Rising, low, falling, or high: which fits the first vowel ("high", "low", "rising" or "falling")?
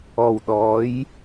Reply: low